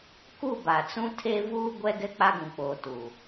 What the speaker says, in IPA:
k u˦˨ b a˨ t͡s ũ˦ tʰ e˦ v uː˦ ɡʷ ɛ˦ ɡ ɛ˦ k͡p a˦ ɡ ũ˨ k͡p oː˨ t u˨

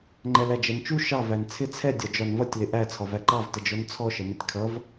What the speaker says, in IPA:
ŋ͡ǃ ɛ l æ d͡ʒ ɛ n t͡ʃ u ʃ ɑ v æ n t͡sʰ ɪ t͡sʰ ɛ dʲ ɒ d͡ʒ ɒ n v ʌ tʲ l ɪ ʔ æ t͡sʰ ɒ v æ ǃ ɑ v t ə d͡ʒ ɔ n t͡sʰ ɔ ʃ ə m ɪ tʲ kʰ ʌ v

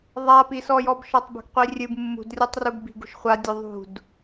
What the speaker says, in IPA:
ðˤ a p i s ɔ j ɔ b ʃ ɔ tˤ b ṳ ɡ qʷ i rʲ ɨ b mː ṳ d rʲ ɔ tˤ r u ɡ b i̤ ɡ ṳ ʃ χʷ a dʲ u ðˤ ṳ d

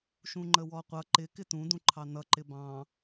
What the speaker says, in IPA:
ʃ ũ ŋ͡ǃ ə w ɔ qʷ ʌ ǃ ɪ k ɪ t ũ d ũ ǃʰ ɑ n ʌ ǃ ɪ b ɑ̃

